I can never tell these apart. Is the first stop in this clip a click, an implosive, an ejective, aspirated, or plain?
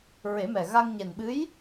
implosive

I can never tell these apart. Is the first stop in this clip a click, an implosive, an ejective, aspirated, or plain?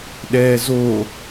implosive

